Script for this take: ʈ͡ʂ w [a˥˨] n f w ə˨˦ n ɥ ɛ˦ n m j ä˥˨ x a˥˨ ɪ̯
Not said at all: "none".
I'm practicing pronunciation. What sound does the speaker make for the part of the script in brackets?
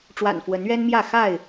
a̰˨˩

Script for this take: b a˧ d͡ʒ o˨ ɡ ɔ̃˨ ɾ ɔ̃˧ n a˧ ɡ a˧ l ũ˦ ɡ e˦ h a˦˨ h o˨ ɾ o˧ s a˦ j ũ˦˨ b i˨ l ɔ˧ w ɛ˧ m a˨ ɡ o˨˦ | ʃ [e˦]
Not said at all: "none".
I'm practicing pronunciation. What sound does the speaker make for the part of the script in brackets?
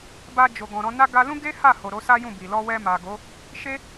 e˦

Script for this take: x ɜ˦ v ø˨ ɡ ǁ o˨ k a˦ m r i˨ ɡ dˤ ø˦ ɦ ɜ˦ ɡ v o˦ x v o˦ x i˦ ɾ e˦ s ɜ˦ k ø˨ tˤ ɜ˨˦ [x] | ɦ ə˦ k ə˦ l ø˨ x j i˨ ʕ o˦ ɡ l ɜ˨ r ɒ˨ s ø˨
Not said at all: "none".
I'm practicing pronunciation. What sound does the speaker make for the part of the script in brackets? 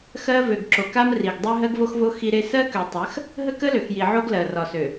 x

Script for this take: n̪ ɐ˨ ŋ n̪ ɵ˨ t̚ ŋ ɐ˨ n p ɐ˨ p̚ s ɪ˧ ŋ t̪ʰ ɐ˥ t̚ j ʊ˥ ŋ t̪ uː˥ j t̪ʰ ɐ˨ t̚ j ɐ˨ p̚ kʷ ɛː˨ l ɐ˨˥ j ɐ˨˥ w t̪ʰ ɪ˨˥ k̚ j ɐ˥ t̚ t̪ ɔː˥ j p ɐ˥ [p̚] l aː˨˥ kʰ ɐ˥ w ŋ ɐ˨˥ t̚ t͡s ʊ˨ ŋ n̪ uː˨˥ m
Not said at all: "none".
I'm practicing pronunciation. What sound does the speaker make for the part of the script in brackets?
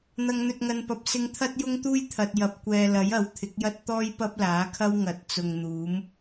p̚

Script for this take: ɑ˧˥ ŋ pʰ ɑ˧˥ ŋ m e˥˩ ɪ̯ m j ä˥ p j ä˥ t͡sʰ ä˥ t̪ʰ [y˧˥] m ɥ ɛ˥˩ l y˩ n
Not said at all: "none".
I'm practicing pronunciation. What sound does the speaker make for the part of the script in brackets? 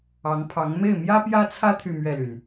y˥˧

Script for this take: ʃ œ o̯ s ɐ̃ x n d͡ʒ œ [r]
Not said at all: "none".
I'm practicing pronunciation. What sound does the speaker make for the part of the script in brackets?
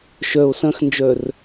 r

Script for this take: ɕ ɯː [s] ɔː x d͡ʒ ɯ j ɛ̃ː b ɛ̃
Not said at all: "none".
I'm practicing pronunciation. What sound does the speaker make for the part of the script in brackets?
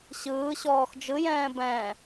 ɕ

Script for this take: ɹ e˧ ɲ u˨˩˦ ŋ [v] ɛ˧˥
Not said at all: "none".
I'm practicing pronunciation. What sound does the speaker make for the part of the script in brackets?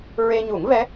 v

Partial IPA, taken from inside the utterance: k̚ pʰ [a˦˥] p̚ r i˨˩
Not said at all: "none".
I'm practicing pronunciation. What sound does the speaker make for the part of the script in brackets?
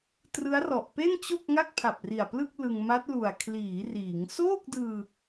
a˨˩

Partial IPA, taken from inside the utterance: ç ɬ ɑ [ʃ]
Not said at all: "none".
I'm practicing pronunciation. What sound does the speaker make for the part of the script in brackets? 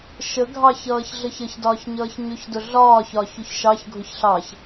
ç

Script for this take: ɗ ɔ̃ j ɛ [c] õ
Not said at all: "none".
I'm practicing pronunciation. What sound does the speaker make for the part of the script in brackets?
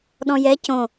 c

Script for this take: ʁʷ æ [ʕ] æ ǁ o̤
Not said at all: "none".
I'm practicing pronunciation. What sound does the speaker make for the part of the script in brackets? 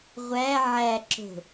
ʕ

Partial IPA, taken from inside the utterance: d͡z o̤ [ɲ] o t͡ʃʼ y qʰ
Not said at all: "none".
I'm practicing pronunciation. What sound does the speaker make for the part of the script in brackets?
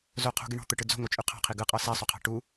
ŋ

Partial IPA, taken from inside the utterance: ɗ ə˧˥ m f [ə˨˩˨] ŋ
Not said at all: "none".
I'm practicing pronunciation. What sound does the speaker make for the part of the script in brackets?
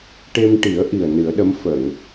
ə˨˩˨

